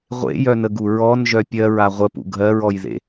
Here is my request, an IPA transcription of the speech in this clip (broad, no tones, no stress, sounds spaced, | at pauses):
ʁʷ ḛ j œ n ə ɡ u ɹ ɔ n ʒ œ pʲ ɜ ɹ a ʁʷ ə p ṵ ɡʱ ɜ ɹ ɔ j ð ḛ